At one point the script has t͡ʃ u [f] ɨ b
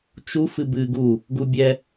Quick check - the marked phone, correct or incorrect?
correct